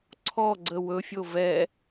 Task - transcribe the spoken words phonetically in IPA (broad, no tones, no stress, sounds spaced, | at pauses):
ǀʰ ɔ ɡ͡ǀ ə w ɵ fʲ o v ɛ